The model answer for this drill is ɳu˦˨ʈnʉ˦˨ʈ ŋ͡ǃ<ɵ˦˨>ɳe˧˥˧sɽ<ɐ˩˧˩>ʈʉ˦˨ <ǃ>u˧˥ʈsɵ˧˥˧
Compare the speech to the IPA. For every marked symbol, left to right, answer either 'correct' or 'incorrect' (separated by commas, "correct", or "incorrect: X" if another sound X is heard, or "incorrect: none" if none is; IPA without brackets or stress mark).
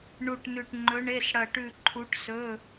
incorrect: ɵ˧˥, incorrect: ɐ˦˨, incorrect: ǃʰ